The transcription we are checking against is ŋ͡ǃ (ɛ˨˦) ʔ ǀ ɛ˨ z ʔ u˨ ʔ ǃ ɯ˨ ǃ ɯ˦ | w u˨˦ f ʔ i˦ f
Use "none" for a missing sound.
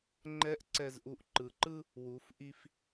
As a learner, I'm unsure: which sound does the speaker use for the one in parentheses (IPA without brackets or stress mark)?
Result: ɛ˨˦